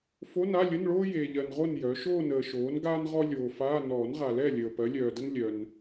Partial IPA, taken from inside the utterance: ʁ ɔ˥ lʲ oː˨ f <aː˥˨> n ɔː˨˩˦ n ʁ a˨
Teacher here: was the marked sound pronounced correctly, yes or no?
no